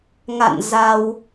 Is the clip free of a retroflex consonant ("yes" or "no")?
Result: yes